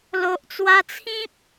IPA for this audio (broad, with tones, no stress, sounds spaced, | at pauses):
l o˨ ʔ t͡s w a˧ t͡sʰ ĩ˦ p̚